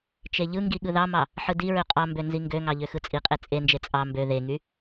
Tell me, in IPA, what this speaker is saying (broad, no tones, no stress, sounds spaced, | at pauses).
t͡ʃ e ʎ ɯ ŋ ɡ i ɠ ɯ ð ɑ m ɑ | ħ ɯ d i ɹ ø qʼ ɑ m b ø n z i ŋ ɡ ø ŋ ɑ ʎ ø x ɯ t͡sʼ i qʼ e t͡sʼ e n d͡ʒ e t͡sʼ ɑ m b ø ð e ŋ y